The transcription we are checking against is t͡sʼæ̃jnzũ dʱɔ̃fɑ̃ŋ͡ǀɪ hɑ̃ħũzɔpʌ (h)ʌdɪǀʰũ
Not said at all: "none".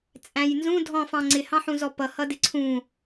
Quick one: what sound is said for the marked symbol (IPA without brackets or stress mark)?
h